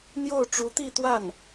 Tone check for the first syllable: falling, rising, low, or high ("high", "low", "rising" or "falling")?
falling